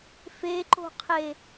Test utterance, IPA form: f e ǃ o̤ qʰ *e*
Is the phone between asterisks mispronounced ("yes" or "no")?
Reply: no